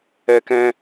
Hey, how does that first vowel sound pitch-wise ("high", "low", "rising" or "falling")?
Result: high